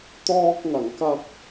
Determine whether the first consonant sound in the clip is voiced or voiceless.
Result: voiceless